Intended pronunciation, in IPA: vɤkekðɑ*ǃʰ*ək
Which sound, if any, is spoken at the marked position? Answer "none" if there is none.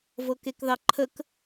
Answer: ǃʰ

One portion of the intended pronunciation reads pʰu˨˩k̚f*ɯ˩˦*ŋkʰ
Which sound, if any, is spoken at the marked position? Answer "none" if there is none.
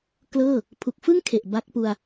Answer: ɯ˥˩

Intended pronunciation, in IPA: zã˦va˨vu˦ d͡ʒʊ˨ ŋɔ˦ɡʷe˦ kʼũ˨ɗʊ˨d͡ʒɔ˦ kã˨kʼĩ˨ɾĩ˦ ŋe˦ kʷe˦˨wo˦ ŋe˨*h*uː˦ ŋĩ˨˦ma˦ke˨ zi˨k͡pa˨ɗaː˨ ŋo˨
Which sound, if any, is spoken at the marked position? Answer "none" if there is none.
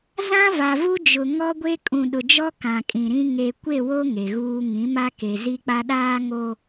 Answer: ɣ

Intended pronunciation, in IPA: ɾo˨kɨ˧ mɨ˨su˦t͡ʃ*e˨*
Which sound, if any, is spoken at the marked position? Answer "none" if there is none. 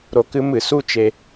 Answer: e˨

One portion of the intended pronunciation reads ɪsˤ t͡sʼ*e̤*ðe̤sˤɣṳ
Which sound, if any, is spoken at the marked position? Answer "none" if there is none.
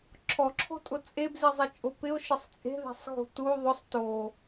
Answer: e̤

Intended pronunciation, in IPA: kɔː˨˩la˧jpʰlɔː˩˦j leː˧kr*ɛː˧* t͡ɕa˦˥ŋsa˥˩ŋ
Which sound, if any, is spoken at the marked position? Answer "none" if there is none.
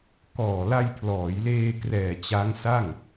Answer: ɛː˨˩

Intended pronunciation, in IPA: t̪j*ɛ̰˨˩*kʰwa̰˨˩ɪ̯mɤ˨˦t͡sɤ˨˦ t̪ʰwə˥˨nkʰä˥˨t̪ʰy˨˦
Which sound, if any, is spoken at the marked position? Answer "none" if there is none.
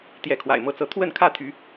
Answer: ɛ˨˦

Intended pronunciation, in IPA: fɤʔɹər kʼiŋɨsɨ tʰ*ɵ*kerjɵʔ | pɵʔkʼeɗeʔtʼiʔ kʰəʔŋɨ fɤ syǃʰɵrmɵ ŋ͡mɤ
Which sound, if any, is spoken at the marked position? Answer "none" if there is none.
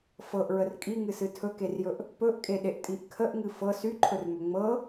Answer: ɵ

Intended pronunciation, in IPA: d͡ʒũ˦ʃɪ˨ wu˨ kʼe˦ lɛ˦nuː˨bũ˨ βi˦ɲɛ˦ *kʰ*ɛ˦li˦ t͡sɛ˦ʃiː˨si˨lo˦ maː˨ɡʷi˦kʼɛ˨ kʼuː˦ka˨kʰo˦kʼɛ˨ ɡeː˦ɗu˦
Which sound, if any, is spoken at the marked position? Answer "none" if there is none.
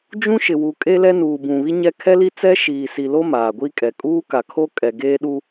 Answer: kʰ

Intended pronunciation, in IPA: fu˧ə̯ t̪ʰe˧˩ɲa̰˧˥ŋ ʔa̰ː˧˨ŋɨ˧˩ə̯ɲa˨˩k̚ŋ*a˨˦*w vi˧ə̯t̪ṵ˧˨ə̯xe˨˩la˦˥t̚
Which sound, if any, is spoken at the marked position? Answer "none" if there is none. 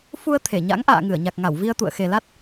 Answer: a˧˩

